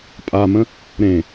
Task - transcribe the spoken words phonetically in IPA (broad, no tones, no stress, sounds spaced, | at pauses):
pʼ a m ə̃ | ɾ ẽ